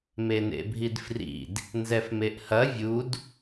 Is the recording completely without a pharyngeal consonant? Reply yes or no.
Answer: yes